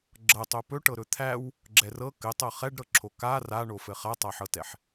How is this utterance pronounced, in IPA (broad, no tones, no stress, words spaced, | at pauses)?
ɡ͡ǁɤtˤo pɵʈɤɾɵ t̪ʰæw | ɡ͡ǁɛrɤ kɘtˤɤ χɛɖɾɤǁʰo ka raɳofɘ χatˤaħɤtɛħ